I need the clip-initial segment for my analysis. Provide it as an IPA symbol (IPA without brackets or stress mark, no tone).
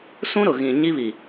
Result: s